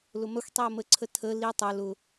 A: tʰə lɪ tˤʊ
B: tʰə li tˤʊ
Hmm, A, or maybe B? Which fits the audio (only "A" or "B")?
B